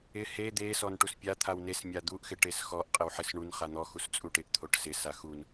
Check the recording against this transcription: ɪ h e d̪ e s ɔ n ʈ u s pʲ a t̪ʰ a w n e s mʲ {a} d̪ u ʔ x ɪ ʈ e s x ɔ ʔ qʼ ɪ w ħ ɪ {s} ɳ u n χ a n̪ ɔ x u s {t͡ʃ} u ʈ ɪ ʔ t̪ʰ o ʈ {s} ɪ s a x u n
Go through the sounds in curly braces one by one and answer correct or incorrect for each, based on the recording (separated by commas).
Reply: correct, correct, incorrect, correct